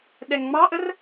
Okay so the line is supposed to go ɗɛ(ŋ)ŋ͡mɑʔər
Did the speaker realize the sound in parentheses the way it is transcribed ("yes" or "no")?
yes